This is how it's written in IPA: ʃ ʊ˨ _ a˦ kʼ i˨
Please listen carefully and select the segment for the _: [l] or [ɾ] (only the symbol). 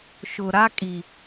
ɾ